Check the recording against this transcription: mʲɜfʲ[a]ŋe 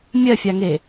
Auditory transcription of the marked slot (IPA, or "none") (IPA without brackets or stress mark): a